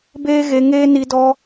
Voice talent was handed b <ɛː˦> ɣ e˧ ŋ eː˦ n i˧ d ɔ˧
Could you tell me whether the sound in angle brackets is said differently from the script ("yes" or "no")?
yes